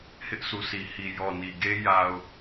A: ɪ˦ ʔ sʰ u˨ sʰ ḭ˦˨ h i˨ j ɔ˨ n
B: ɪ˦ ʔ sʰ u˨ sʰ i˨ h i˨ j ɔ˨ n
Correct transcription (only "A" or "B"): B